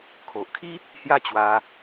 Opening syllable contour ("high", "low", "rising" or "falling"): low